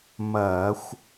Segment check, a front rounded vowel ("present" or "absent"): absent